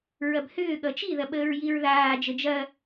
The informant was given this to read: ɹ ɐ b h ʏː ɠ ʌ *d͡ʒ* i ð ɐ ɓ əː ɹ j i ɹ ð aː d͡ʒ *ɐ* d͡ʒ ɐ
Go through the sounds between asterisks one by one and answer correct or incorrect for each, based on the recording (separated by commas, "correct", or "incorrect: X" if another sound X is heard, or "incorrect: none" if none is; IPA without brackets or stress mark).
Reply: incorrect: t͡ʃ, incorrect: ə